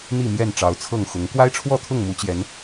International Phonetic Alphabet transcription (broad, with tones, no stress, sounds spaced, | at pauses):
n̪ i˥˨ m j ɛ˥˨ n ʈ͡ʂ ɑ˨˦ ʊ̯ t͡sʰ ɤ˥˨ ŋ x ʊ˨˦ ŋ k w a˦ ɪ̯ ʈ͡ʂʰ w ɔ˥˨ t̪ʰ ʊ˥˨ ŋ m u˨˦ t͡ɕ j ɛ˨˦ n